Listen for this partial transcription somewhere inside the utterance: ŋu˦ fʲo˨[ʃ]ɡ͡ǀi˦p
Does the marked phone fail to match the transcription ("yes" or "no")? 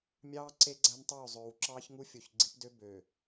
yes